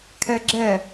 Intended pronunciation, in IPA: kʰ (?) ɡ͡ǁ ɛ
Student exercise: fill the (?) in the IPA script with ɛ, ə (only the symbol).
ɛ